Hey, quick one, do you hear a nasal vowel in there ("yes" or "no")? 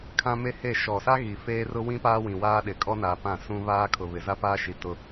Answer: yes